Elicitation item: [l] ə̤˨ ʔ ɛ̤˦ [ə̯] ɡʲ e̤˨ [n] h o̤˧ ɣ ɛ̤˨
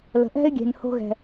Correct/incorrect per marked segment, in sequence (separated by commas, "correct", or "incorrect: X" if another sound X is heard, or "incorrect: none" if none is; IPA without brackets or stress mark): correct, incorrect: ɪ̯, correct